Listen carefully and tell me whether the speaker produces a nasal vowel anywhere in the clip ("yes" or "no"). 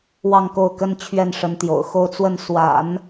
no